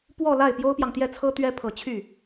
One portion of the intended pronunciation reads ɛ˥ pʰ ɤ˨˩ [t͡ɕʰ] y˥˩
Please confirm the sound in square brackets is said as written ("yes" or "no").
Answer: yes